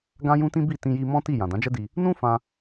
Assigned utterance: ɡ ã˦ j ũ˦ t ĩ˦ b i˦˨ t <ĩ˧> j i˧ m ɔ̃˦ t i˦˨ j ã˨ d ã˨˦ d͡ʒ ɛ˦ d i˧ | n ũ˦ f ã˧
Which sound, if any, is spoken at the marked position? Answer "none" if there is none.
ĩ˧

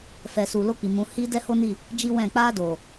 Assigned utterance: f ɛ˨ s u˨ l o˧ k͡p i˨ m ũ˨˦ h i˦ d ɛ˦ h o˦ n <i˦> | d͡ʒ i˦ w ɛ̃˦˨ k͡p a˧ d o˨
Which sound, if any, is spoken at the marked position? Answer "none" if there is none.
i˦˨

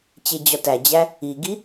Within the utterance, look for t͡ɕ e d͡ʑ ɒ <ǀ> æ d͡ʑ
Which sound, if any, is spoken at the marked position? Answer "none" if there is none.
t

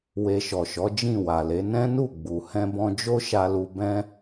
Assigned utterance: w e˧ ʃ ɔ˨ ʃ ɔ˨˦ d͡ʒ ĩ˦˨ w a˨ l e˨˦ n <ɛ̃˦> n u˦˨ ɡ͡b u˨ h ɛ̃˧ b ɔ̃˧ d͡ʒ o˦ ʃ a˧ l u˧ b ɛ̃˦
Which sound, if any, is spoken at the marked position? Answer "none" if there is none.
ɛ̃˦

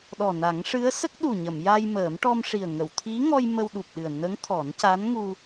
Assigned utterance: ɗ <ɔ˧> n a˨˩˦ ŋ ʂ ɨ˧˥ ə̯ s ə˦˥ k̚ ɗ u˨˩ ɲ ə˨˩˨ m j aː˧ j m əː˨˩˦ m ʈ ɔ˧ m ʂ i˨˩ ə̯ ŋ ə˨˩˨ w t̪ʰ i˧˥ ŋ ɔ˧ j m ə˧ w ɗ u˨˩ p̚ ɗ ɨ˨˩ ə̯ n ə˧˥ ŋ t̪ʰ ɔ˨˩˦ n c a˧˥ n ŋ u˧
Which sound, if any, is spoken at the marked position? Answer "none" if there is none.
ɔ˨˩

